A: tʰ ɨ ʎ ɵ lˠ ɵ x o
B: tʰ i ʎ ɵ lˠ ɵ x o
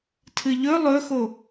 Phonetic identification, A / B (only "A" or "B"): A